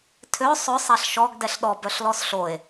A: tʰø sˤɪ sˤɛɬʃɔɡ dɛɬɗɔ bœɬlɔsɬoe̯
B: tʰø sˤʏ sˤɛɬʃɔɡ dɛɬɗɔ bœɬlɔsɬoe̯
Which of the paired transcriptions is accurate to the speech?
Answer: B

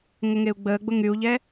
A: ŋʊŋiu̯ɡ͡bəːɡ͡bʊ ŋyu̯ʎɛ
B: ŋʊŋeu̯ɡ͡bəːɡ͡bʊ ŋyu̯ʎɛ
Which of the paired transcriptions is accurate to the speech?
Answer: B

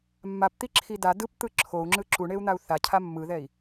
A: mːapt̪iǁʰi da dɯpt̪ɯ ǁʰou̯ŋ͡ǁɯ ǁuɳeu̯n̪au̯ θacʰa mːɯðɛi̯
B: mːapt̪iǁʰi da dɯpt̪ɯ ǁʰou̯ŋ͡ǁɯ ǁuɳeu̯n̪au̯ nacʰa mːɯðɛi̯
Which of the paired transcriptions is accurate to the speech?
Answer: A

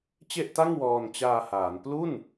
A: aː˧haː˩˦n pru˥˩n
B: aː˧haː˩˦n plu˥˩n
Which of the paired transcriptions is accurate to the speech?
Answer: B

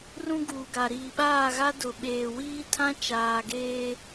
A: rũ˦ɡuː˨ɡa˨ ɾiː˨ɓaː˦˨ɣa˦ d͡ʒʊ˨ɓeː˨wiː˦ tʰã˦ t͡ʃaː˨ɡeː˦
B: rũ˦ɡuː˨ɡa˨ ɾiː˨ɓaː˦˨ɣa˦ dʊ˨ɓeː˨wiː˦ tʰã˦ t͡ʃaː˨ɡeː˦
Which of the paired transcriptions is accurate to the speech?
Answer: B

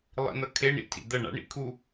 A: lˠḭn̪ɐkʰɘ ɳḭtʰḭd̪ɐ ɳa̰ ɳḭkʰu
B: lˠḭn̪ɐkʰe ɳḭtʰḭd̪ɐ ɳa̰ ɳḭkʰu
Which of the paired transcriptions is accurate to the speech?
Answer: B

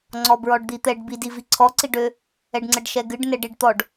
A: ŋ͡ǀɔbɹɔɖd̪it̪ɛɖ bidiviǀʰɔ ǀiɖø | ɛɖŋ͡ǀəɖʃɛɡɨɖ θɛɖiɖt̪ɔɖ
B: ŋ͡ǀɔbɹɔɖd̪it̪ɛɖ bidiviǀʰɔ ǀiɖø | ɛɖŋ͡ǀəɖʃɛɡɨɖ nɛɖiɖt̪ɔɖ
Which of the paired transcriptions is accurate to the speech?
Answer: B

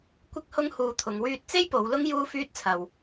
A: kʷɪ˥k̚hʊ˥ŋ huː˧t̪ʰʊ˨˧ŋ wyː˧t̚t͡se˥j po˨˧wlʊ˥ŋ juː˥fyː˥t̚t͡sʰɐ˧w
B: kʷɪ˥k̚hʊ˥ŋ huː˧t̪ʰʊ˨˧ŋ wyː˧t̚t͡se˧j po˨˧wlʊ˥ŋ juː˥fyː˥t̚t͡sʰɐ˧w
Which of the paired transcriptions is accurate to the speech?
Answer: A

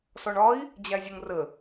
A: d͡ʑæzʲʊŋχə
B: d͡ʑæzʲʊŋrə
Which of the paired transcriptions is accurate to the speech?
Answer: B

